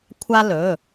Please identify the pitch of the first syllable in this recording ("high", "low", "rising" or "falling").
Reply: high